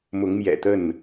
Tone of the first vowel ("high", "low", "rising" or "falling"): rising